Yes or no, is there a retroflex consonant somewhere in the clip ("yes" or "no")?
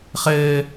no